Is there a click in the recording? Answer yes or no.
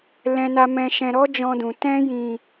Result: no